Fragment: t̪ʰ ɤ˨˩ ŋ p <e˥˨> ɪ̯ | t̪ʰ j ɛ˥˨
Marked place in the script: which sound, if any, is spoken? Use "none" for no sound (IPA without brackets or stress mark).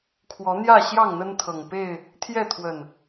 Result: e˥˨